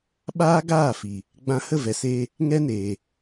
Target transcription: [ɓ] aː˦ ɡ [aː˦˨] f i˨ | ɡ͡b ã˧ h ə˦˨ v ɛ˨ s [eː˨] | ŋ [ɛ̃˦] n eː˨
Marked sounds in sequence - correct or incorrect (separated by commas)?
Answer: correct, correct, incorrect, incorrect